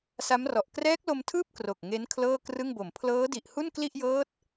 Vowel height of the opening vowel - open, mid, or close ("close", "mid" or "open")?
open